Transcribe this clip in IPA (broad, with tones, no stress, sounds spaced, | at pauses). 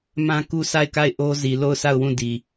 m ã˦ k u˦ s a˦˨ ɪ̯ k a˦˨ ɪ̯ ʔ o˦ z i˨ l o˦˨ ʊ̯ sʰ a˦˨ ʊ̯ w ũ˦˨ d i˨